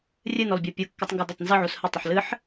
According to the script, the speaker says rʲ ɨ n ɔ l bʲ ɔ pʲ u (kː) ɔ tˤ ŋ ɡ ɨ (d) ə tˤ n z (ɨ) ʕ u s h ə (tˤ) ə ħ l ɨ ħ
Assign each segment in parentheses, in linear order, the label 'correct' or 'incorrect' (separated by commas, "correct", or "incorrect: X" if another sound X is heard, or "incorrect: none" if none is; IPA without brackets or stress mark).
correct, correct, correct, correct